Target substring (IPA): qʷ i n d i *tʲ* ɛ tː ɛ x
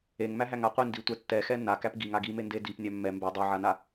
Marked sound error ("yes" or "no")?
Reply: yes